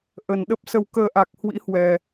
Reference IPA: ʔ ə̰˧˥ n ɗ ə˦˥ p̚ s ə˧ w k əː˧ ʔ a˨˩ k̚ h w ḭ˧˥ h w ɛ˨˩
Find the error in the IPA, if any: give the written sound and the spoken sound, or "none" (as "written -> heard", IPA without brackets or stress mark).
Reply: ə̰˧˥ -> ə˨˩